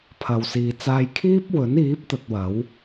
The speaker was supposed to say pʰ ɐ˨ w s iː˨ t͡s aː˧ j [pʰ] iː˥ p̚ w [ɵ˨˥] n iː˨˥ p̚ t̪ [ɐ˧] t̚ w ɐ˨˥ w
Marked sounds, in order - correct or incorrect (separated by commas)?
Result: incorrect, correct, correct